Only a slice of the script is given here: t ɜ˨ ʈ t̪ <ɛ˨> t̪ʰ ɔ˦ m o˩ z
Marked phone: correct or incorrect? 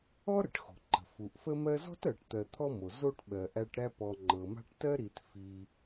incorrect